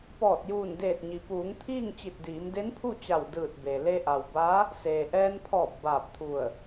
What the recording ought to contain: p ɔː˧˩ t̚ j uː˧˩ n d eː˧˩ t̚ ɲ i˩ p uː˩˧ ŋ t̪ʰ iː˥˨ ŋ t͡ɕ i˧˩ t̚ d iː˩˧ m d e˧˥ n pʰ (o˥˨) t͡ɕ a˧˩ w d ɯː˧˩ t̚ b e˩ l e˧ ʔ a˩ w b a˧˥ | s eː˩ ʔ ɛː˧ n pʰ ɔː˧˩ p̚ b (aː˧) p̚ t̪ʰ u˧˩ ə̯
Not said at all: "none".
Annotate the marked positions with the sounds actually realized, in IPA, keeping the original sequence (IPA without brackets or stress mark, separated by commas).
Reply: u˥˨, aː˧˩